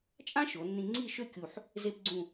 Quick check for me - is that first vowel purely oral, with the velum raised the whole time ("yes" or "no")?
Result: no